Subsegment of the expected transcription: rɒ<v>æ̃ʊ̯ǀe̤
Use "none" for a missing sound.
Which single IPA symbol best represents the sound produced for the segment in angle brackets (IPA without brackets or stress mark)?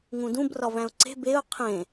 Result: v